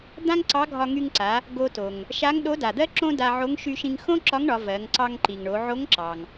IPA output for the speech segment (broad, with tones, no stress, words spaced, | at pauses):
d̪ã˥ŋǀɑ˧˥ɡʱɒ˧ ŋy˧ŋǀa˩˧ | ɡo˧to˩ŋ | ʃa˧˥ŋɗo˧˥da˩d̪ɜ˥ ǁõ˥ da˧ʕo˧˥ŋ ʃy˧ ʃĩ˧ŋxõ˥ǁɒ˧˥ŋɳɒ˩˧ vɜ˩˧ŋǀɑ˧ŋǃi˩ŋɳo˩˧ ʕo˧˥ŋǁɑ˩ŋ